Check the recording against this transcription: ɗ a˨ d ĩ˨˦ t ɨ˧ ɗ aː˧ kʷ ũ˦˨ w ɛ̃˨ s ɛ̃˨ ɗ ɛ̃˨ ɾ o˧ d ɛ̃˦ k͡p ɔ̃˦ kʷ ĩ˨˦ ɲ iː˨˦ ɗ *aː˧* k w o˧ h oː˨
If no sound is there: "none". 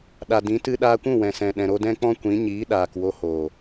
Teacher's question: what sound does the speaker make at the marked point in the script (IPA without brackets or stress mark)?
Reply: aː˨